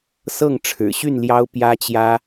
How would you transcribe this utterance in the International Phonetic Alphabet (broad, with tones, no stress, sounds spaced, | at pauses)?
s ɤ˥˨ ŋ ʈ͡ʂʰ ɻ̩˨˩ ɕ y˥˨ n l j ɑ˦ ʊ̯ p j ä˦ t͡ɕ j ä˦